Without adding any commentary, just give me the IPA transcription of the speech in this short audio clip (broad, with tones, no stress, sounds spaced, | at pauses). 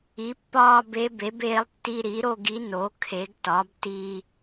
i˩˥ pː ɒː˥˧ b e˧˥ b e˩˥ b eː˧˥ lˠ tː i˧ ɾ i˩˥ ɾ o˥˧ ɡ i˧˥ n o˩˥ kʰ e˩˥ ɡ t ɒ˩˥ b t i˧